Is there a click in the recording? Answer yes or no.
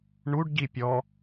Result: no